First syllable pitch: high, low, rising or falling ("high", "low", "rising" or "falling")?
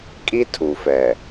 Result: high